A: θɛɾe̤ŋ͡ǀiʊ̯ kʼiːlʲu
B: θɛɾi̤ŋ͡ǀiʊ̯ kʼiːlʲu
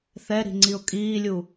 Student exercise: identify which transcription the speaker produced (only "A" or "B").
B